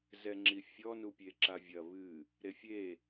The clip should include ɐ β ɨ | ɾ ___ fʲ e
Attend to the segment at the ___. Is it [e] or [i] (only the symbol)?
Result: e